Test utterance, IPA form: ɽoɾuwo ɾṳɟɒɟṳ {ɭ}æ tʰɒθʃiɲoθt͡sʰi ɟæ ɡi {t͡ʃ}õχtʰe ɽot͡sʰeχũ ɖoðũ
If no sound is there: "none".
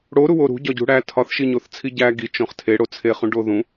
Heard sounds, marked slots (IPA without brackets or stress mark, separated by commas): ɽ, t͡ʃ